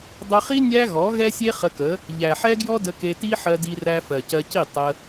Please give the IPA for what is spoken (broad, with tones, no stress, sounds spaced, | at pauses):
dˤ ə˧ χ i˦ nʲ æ˦ ɣ ɔ˨˦ ɣ ɛ˦ sʲ e˦ χ ə˧ k ə˨˦ | ʎ æ˨ ħ ɛ˦ ɡ j ɔ˦ d ə˧ k e˧ t i˦ ħ ɜ˧ d i˧ r æ˧ f ɜ˨ c ɜ˧ c i˦˨ tˤ ə˧